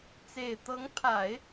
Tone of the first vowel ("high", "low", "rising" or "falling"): low